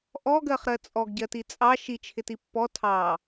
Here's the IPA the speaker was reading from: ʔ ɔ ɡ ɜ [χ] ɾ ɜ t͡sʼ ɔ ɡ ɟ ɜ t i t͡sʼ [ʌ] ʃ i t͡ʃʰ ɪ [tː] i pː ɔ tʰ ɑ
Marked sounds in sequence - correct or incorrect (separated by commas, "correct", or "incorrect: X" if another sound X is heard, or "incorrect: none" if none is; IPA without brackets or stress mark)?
correct, incorrect: ɑ, incorrect: t